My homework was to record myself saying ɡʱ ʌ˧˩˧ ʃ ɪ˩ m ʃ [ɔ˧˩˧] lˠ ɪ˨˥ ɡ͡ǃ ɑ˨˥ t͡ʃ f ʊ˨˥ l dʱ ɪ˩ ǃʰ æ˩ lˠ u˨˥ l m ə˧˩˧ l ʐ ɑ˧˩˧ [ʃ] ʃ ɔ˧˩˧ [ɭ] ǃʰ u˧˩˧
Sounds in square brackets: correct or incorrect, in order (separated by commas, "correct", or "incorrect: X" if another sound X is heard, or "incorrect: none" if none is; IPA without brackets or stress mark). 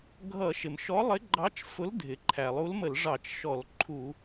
incorrect: ɔ˨˥, incorrect: t͡ʃ, incorrect: l